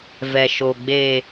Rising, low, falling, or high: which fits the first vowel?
low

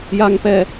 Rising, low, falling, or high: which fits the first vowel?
high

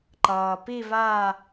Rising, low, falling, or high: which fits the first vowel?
low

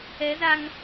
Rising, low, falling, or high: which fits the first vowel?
rising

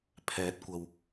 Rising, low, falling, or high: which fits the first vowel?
rising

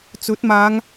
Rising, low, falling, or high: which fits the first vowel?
rising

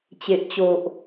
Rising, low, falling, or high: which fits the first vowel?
low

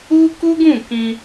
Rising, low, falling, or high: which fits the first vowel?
high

